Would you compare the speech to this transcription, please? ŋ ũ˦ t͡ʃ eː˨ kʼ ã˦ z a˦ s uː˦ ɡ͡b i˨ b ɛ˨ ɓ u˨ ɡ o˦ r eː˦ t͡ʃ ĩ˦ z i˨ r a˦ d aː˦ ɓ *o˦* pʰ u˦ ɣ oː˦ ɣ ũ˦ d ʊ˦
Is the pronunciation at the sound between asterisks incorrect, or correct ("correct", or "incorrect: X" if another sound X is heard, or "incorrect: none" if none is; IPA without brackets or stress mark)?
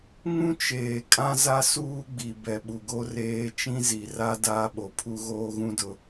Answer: incorrect: o˨